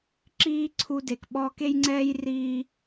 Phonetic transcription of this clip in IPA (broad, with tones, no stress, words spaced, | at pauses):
ǁiː˦ǀʰu˧ de˨kɓɔː˦k e˦jŋ͡ǀɛː˦j riː˦